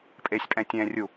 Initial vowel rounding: unrounded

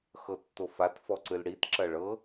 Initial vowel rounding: unrounded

